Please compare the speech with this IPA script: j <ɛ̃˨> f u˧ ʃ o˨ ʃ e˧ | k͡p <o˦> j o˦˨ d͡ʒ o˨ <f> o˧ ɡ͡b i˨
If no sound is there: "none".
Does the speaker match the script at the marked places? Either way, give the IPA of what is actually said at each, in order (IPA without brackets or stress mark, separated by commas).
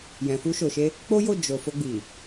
ɛ̃˨, o˦, f